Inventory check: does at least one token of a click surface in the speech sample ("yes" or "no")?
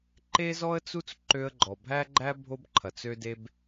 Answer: yes